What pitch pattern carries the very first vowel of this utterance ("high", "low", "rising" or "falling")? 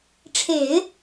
low